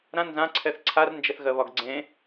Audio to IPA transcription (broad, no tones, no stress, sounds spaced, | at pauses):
ɾ ã n z ã ǀʰ ɛ θ ǀʰ a r n d͡ʒ ɛ θ ɣ ɜ β ɒ ɡ ɡ͡ǀ ẽ